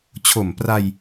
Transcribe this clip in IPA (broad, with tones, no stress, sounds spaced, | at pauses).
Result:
t͡ɕʰ o˨˩ m p r a˧ j